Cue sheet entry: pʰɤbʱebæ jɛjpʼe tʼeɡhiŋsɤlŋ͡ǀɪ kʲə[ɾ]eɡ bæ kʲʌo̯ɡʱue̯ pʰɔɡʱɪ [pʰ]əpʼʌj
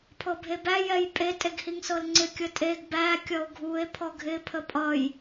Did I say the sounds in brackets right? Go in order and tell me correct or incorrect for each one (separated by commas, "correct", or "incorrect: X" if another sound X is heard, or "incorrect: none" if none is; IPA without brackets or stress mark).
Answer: incorrect: tʼ, correct